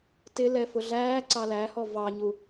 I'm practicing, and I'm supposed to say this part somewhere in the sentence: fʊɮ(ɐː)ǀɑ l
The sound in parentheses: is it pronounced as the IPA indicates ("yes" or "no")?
no